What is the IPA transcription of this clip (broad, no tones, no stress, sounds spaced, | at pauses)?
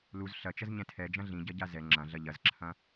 l u z ɬ ɐ t͡ʃ ɐ z ɲ ɛ̃ tʰ ɛ d͡ʒ ɐ̃ ɮ ĩ ɟ ɐ ɟ a z ɛ ŋ͡ǁ ɐ̃ ɮ ɐ ʎ ɐ z ǁʰ ɐ̃